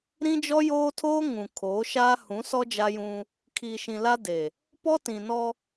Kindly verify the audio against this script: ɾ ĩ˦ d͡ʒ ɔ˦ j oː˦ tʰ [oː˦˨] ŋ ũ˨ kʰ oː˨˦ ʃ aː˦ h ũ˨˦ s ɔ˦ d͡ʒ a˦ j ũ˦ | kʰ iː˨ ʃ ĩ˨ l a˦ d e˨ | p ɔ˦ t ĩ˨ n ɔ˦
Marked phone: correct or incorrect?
incorrect